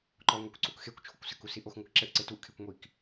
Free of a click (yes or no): no